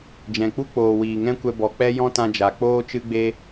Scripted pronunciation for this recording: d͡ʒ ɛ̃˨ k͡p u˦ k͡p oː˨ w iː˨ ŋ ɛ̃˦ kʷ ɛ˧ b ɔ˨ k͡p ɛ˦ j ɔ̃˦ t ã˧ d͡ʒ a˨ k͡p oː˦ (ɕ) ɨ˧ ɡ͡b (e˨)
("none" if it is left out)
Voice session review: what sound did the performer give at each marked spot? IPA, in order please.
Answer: t͡ʃ, e˧

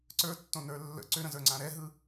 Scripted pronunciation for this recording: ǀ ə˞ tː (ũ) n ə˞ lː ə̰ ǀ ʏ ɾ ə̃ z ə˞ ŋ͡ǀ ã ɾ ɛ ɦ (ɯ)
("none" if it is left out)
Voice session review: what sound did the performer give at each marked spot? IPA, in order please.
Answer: õ, ɯ

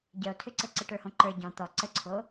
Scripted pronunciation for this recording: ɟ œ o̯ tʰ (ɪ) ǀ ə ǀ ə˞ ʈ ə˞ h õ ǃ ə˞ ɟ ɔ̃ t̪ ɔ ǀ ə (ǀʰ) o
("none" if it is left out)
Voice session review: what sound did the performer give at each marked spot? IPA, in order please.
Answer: ʏ, ǀʰ

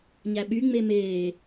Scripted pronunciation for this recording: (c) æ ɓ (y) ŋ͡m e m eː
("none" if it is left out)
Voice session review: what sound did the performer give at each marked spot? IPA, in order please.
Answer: ɲ, y

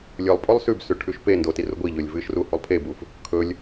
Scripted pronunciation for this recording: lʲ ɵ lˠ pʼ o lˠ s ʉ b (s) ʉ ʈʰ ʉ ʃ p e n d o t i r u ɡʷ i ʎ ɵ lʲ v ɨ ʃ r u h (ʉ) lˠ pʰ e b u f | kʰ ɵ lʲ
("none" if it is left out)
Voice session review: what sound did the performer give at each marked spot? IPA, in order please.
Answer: s, u

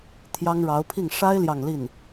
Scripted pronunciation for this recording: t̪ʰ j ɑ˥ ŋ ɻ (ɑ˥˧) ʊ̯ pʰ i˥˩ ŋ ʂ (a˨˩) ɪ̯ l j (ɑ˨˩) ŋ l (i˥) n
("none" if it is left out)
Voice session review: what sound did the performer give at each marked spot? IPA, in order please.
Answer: ɑ˧˥, a˥, ɑ˥˧, i˥˩

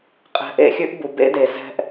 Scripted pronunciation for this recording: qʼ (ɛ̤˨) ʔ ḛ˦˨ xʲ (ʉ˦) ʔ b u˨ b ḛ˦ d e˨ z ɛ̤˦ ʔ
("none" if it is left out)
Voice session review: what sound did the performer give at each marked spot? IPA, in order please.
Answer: ɛ̤˨, ʉ˦

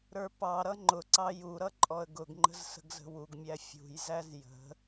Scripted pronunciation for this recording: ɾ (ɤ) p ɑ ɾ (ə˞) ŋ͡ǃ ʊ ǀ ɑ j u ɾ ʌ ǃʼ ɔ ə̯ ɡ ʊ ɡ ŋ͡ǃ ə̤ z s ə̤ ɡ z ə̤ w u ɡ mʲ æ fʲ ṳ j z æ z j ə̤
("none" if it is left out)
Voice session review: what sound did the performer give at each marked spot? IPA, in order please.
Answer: ə˞, ʌ

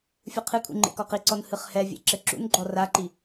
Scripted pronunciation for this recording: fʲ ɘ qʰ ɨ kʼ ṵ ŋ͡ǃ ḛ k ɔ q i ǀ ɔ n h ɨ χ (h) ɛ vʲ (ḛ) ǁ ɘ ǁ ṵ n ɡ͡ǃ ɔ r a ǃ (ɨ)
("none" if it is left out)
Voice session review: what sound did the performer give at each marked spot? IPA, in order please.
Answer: h, ḛ, i

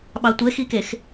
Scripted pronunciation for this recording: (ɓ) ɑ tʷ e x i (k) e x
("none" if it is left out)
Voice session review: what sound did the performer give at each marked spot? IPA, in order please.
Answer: ɓ, k

